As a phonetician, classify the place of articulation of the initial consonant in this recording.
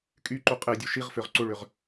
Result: velar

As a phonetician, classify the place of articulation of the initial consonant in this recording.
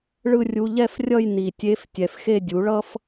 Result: retroflex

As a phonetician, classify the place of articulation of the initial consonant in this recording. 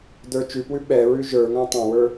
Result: alveolar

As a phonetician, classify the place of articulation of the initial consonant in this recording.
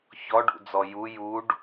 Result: palatal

